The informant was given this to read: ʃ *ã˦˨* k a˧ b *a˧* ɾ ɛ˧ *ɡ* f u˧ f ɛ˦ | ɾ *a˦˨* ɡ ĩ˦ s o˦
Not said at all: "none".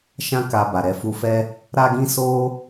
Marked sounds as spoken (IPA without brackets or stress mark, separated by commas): ã˦, a˨, none, a˦